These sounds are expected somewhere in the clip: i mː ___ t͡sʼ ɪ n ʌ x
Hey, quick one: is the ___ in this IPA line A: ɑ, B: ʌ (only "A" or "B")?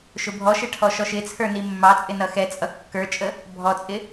A